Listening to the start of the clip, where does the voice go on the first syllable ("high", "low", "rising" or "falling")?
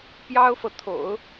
high